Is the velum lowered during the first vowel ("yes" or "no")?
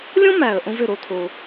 yes